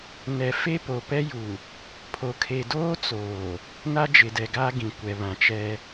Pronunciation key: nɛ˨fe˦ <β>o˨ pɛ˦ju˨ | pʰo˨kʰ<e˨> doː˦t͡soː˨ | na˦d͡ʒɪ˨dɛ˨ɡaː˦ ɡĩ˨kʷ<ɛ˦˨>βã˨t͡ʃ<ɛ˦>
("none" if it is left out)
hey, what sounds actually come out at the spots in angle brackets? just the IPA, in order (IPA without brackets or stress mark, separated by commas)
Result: p, e˨, ɛ˨, ɛ˦